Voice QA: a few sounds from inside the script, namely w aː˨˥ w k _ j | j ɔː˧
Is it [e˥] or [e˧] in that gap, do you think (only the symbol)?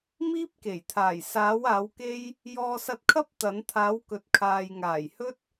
e˥